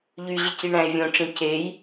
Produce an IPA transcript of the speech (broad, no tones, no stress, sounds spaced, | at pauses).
ʎ y ʑ i c i ɳ æ̃ e̯ vʲ õ ʈ͡ʂ ĩ c e j